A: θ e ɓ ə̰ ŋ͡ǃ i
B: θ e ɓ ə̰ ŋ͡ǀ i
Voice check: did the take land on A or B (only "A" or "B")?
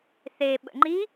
A